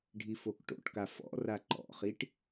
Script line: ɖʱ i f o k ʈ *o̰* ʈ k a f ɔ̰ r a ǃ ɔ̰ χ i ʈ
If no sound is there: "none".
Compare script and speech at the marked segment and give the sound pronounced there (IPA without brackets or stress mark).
o̰